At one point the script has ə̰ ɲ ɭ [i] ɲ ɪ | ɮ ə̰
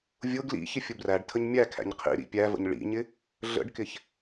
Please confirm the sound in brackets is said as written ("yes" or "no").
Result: no